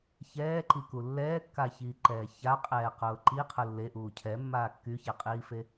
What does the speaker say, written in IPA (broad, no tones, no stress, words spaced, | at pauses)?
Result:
çɛːǃiku lːɛːkːaçiːǃɛː çaqʼɛːqʊː ǃiqʰʊ lːeʔuː cʰɛmːaː kːyçɛqʼiːfe